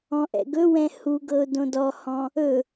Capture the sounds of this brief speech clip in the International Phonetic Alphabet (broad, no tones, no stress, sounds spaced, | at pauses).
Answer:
ɔ̃ ʔ ɛ̰ ɡ ɵ w ɛ̃ h u ɡ ɤ ʊ̯ d õ d ɔ h ɔ̃ | ɵ